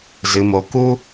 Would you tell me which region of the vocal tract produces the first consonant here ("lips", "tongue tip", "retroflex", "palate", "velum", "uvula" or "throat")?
tongue tip